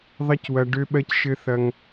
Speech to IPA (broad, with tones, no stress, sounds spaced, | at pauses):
ðˤ ɐ˦ c w ɐ˧ ɖ ø˦ ɓ ɜ˦ c ʃ ɘ˦ θ ɐ˦ ŋ